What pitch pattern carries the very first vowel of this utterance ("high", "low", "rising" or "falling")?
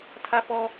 high